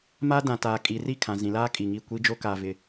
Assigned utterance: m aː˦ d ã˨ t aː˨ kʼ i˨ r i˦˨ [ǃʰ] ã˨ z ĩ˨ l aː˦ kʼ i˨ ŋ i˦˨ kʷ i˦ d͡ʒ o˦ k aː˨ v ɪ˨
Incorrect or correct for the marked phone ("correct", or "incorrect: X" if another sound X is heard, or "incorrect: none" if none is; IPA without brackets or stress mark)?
incorrect: kʰ